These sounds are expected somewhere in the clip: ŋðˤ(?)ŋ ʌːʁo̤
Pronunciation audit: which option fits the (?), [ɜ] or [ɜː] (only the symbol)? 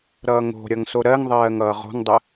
ɜː